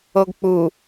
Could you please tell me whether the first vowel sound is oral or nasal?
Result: oral